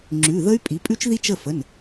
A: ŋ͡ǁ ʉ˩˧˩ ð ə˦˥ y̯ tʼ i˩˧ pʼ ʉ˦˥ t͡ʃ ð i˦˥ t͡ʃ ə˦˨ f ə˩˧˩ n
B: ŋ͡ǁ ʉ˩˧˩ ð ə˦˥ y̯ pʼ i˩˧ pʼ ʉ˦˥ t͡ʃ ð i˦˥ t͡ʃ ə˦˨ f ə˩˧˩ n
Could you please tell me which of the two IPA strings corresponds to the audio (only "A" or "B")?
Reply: B